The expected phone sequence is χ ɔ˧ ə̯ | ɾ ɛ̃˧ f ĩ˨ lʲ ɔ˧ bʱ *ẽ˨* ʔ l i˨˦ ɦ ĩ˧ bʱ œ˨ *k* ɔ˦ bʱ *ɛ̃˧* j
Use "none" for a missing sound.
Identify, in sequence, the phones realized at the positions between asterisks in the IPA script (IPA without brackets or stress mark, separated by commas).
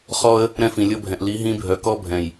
ɛ̃˨, k, ɛ̃˨